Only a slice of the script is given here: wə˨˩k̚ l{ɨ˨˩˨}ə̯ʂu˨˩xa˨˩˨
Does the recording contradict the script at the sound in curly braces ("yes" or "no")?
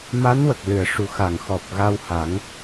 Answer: no